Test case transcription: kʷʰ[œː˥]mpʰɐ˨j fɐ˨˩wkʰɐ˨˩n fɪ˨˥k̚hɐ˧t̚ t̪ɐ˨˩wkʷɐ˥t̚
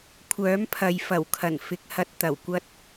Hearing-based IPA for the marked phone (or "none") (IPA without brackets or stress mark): œː˨˥